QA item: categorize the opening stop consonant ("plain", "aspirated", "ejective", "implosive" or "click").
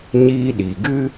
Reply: implosive